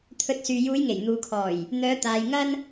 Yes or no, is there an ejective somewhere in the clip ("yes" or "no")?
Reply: no